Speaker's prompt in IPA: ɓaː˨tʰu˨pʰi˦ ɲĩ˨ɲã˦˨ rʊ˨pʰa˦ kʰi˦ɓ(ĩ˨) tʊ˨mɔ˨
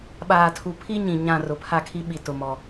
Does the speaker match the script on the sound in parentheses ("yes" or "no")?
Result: no